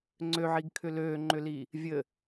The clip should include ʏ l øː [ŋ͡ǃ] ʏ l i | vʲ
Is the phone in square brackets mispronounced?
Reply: no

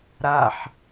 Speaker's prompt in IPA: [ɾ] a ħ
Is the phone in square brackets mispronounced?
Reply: no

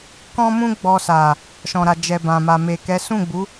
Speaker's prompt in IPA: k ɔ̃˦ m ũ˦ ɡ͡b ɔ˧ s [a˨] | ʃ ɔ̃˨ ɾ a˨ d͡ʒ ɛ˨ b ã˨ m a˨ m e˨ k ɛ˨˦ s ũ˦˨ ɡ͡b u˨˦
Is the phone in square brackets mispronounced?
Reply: no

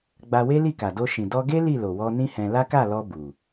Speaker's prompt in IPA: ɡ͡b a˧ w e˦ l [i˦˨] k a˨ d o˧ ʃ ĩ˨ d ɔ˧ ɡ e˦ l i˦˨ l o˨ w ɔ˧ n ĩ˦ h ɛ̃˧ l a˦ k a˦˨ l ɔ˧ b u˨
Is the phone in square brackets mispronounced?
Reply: no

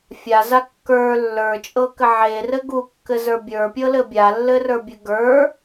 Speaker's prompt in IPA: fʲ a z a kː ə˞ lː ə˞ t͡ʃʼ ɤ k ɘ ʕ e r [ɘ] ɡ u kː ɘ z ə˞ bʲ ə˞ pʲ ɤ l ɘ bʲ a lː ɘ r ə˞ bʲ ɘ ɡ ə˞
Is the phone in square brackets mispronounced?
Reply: no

